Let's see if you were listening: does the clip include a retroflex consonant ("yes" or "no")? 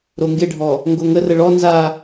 yes